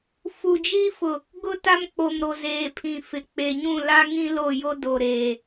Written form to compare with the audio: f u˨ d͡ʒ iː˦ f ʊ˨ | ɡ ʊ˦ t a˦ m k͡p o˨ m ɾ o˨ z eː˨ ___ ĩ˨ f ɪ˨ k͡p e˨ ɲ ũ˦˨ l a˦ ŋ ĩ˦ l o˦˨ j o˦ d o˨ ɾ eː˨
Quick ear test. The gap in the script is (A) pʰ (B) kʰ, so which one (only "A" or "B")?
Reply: A